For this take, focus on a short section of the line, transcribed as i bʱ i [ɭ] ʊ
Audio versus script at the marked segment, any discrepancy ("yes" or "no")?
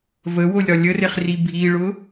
no